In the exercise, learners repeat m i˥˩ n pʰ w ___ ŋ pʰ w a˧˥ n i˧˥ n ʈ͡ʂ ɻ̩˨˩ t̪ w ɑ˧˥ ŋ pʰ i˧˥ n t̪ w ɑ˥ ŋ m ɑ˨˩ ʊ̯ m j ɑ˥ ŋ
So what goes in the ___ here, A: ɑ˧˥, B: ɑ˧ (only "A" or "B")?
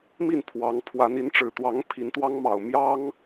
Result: A